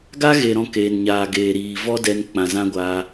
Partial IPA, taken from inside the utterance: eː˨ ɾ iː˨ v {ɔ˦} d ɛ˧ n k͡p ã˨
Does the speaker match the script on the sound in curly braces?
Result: yes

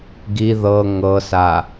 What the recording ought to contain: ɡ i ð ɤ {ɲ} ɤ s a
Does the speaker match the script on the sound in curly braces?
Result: no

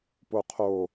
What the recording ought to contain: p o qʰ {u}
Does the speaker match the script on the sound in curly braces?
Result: no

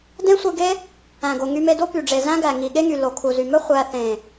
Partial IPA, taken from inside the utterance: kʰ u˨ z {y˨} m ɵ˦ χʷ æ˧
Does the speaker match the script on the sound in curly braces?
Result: yes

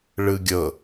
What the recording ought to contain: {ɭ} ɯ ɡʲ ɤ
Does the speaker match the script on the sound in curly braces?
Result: yes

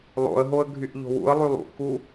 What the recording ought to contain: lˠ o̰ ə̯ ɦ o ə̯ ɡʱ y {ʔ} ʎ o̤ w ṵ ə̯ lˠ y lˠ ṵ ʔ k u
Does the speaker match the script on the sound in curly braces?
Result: yes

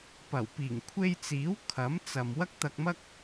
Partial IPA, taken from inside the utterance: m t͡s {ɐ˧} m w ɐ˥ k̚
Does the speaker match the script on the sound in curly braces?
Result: no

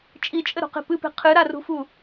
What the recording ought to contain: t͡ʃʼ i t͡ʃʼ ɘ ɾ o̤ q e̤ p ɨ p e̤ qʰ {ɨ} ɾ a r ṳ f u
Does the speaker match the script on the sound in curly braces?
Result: yes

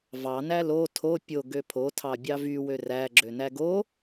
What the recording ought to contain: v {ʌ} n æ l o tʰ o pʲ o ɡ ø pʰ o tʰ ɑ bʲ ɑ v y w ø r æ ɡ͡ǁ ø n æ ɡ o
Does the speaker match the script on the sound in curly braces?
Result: no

